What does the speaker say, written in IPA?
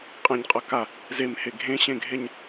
qʼ ɛ̃ ɲ qʼ ʌ k a | z e m h e ɡʱ ẽ ɕ ẽ ɡʱ e ɲ

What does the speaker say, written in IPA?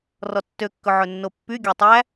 r ɔ tː ø kː ɵ ʕ ɵ nː o pː y ɡʲ æ tˤ æ

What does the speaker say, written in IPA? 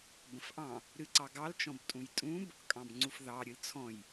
b ə̃ f ʔ ɑ̃ | ɾ ɨ ǀ ɑ ɡ ɑ l t͡ʃ ɔ̃ b tʼ ũ j tʼ ũ b | kʼ ɑ̃ b ŋ͡ǀ u f ð ɑ ɾʲ ɨ l t͡sʰ ɔ̃ j

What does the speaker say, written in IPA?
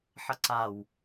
ħ ʌ ǀ a w

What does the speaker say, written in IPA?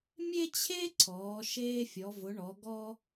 mʲ e˥ t͡ɕʰ e˥ ǀʰ ɔː˩˧ ʃ eː˧ fʲ ɔ˩˧ v ʊ˩˧ ɳ ɔ˩˧ ɡ ɔ˧

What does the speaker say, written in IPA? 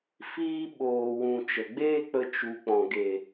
f iː˧ ɓ oː˨ w ũ˨ t͡ʃ ə˨ ɡ͡b eː˦ k͡p ə˧ t͡ʃ u˨ k͡p ɔ̃˨ ɡ e˨

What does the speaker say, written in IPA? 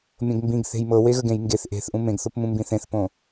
mʲ õ ɡ m b ĩ ɡ θ e̤ j m ɤ w e ɣ ə ɡ ẽ j ŋ ɡ e θ ʔ e̤ θ ʔ ũ m ẽ ɡ θ o p m ũ m b ĩ θ ẽ θ p õ

